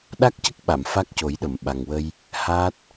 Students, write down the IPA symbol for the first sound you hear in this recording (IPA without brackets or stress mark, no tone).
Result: ɗ